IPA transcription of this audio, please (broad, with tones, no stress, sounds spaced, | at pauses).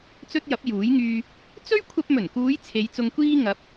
t͡s ɵ˥ t̚ j ɐ˨˥ p̚ j uː˨˥ j ŋ yː˧ | t͡s ɵ˥ ɥ kʷʰ ɐ˧ p̚ m ɵ˨˩ n k uː˨˧ j t͡sʰ e˨˧ j t͡s ʊ˧ ŋ kʷ iː˥ ŋ ɐ˨˥ p̚